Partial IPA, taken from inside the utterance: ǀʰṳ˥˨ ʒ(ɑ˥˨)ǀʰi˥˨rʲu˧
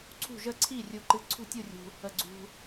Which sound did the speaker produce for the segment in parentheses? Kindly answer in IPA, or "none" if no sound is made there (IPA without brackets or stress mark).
ə˥˨